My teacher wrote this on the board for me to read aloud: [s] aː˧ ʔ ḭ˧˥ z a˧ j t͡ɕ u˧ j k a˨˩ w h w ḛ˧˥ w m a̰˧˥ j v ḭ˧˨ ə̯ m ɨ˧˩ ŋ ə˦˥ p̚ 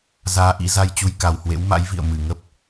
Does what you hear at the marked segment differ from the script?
yes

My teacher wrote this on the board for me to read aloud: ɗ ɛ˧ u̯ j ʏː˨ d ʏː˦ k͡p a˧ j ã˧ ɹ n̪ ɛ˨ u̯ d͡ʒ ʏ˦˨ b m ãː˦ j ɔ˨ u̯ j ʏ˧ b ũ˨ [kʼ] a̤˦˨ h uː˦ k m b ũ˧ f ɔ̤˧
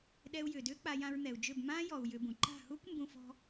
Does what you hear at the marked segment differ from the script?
yes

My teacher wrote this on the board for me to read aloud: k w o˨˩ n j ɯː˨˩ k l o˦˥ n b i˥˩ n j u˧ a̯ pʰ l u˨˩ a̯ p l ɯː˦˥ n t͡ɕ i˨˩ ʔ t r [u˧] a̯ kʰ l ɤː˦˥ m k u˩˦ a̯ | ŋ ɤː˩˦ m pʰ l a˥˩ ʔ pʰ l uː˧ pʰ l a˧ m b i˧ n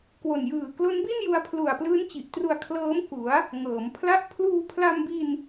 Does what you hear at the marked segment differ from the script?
no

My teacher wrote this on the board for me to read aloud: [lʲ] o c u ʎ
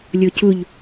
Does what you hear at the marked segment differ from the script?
no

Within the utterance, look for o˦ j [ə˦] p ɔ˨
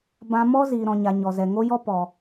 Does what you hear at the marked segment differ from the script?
yes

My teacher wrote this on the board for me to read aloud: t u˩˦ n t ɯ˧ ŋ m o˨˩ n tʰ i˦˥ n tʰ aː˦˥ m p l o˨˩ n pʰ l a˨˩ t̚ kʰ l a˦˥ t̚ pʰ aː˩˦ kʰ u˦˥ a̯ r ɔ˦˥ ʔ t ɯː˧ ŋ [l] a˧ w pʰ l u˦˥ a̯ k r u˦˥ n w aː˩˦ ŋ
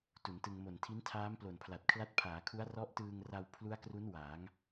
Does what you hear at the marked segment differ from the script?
yes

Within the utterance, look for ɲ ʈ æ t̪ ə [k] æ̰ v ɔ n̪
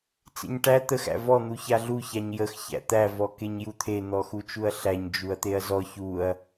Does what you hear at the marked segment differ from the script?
yes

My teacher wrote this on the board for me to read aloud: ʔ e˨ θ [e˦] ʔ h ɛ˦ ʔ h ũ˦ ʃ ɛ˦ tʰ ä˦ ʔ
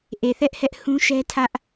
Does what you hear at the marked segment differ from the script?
yes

